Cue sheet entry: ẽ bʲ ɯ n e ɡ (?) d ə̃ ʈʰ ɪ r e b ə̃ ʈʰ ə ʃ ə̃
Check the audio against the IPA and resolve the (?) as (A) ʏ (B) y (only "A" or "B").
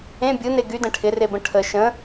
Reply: B